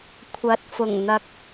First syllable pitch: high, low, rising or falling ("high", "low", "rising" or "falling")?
rising